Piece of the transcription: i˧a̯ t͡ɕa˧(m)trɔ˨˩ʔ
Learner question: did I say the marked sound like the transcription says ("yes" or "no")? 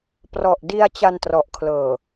no